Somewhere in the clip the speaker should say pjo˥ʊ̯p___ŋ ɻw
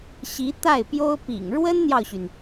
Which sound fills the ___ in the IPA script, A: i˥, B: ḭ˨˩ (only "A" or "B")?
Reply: B